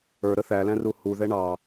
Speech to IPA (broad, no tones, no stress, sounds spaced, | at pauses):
ə˞ ɾ ə θ æ l æ̃ r u h u ð ɛ ɳ ɑ